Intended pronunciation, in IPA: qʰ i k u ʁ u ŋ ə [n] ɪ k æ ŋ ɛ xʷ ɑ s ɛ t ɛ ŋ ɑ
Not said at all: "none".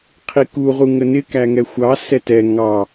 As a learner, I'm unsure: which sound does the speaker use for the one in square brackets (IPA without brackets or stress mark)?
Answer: n